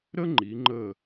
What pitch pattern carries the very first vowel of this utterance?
high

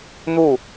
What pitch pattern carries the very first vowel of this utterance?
falling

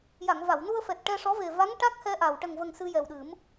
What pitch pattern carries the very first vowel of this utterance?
low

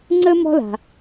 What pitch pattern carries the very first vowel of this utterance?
high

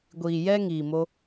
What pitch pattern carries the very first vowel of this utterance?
low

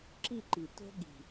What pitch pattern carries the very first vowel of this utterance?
falling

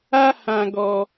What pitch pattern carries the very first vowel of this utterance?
high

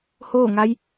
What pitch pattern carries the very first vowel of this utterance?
falling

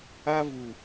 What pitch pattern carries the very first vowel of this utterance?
high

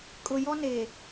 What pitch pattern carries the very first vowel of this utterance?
low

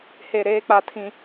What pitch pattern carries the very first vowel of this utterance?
low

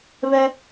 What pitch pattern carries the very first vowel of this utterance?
high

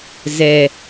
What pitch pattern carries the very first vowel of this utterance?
low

